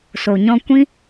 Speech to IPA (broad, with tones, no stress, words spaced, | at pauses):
so˨ ɲɔ̃˧kʷĩ˦